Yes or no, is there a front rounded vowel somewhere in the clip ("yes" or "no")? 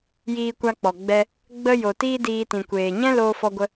no